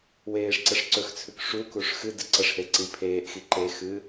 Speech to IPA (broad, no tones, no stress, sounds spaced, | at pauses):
w eː ʂ ǀ ɐ ʂ ǀ ɵ x t͡sʰ ʉ k ʂ u k u ʂ x ɨ d ɨ ǀ ɐ ʂ h e ǀ i pʰ eː ʔ x i ǃ e x ɨ